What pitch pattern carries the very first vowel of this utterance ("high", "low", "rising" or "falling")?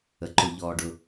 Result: low